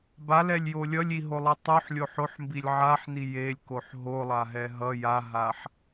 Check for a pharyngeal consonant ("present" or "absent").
present